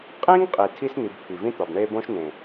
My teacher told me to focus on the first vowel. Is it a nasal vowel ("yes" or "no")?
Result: yes